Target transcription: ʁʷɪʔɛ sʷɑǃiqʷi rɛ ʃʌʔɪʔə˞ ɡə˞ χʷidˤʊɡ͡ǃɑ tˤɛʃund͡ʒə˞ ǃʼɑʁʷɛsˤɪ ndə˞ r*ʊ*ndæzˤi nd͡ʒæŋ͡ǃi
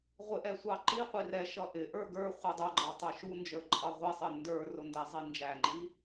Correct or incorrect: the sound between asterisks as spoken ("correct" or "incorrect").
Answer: correct